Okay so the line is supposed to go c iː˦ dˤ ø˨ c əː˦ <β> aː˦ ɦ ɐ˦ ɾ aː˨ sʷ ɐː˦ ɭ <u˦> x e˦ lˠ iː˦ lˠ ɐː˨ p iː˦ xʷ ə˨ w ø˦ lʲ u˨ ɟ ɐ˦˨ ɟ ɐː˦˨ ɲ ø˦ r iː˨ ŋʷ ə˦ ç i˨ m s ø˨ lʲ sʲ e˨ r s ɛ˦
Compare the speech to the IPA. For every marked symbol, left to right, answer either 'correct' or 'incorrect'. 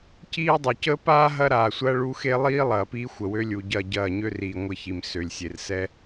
incorrect: p, correct

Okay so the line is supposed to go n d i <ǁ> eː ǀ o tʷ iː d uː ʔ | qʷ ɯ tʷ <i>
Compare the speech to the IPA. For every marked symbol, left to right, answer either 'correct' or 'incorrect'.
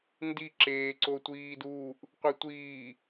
correct, incorrect: iː

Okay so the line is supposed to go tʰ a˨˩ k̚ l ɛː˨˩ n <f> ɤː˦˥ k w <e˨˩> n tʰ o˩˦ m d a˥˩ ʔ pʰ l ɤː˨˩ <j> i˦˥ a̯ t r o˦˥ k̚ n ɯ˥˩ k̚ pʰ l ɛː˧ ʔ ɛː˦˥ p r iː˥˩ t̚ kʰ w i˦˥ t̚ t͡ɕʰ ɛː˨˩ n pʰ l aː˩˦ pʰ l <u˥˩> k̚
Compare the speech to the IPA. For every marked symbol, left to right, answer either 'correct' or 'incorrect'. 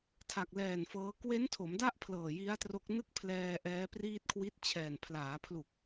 correct, incorrect: e˦˥, correct, incorrect: u˨˩

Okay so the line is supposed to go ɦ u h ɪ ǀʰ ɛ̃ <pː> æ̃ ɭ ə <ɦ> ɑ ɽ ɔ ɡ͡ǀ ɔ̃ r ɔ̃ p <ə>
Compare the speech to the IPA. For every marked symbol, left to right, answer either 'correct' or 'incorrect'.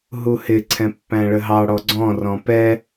correct, correct, incorrect: ɛ

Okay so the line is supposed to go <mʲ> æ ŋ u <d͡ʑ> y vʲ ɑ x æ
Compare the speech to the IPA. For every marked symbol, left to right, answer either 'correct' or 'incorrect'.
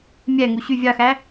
correct, incorrect: ɕ

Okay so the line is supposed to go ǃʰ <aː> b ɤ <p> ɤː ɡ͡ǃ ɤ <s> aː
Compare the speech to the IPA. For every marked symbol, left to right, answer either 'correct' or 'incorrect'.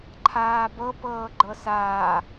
correct, correct, correct

